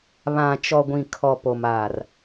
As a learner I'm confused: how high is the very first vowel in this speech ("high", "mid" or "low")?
low